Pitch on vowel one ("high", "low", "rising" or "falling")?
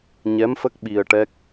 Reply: rising